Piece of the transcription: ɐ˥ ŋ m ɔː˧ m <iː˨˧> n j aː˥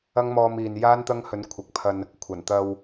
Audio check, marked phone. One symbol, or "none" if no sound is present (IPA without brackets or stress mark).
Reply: iː˨